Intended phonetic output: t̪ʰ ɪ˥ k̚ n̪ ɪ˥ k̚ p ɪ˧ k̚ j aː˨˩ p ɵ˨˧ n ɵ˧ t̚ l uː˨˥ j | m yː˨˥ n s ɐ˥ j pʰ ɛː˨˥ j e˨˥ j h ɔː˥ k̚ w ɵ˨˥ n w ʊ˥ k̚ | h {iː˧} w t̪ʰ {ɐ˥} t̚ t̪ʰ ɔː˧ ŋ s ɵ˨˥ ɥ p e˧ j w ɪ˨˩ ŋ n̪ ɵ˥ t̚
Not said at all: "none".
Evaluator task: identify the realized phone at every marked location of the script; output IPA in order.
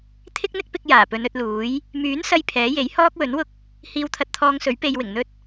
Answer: iː˧, ɐ˧

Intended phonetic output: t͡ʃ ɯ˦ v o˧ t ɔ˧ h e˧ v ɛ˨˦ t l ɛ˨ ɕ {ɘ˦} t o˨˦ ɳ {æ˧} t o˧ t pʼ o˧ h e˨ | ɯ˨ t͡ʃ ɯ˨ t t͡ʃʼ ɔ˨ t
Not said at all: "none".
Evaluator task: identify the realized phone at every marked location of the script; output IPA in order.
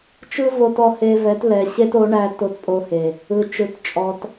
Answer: e˦, æ˧

